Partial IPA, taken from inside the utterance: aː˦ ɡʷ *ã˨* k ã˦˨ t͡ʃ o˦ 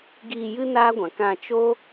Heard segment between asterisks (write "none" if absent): ã˨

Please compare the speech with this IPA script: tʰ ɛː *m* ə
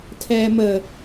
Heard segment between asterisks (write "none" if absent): m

